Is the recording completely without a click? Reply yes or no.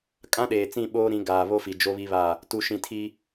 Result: yes